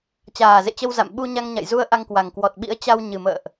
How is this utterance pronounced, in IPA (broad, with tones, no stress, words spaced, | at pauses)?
t͡ɕaː˨˩zḛ˧˨t͡ɕə˧wza̰˧˨m ɓu˧ɲa˧ŋɲa̰˧˨j zu˧ə̯ ʔa˧ŋkwa˨˩ŋkwɔ˨˩t̚ ɓḭ˧˥ə̯t͡ɕa˧w ɲɨ˨˩mə̰ː˧˨ʔ